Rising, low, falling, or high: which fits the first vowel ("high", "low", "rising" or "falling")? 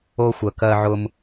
high